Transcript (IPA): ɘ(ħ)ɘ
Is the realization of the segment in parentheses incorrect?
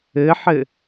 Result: no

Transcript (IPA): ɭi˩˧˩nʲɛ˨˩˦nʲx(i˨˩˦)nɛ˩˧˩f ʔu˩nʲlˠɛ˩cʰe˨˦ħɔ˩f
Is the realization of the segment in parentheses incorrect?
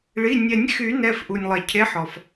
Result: yes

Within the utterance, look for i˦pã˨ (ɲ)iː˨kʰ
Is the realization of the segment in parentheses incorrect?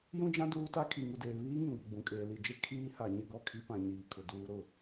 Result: no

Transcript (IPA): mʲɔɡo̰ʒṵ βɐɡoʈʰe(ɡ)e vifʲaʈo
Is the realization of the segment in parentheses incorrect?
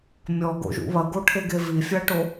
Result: no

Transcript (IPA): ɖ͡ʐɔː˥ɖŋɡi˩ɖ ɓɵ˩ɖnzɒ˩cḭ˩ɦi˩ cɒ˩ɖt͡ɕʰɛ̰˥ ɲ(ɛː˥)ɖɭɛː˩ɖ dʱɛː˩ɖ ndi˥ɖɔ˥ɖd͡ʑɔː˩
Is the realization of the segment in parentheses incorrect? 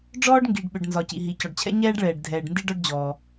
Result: no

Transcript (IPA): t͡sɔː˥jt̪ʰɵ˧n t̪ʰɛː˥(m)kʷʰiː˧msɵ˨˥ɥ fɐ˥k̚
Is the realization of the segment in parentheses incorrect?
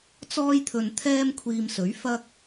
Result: no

